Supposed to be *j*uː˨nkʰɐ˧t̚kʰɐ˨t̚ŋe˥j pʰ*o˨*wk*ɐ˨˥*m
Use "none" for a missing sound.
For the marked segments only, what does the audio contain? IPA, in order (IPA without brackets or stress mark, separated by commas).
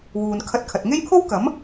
w, o˥, ɐ˨˥